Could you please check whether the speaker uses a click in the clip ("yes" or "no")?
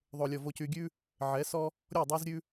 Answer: no